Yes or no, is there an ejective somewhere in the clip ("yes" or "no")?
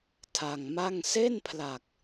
no